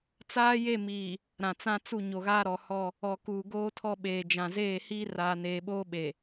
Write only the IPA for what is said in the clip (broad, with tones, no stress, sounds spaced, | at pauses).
t͡s aː˦ j e˦˨ m iː˨ | ɾ ã˨ t͡s ã˦ t͡s u˦˨ ɲ o˨ ɣ aː˦ ɾ ɔ˨ h ɔ˦˨ | ɔ˨ k uː˨ ɡ oː˦ tʰ ɔ˦˨ ɓ eː˨ d͡ʒ ã˨ z eː˦˨ h iː˦ r aː˨ n eː˨ ɓ oː˦ ɓ e˨